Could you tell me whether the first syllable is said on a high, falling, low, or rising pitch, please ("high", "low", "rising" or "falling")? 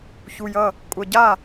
low